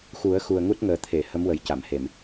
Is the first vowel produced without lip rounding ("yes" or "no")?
no